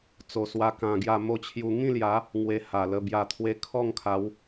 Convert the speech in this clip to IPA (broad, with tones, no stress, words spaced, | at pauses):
t͡so˧swa˦kã˧ɡja˥˧ mo˥˧t͡ɕʰju˧ ŋĩ˥˧lja˨˦ | ŋwe˧ha˨˩lə˧ bja˨˩t̪ʰwe˧ kʰɔ˥˧ŋkʰa˨˦w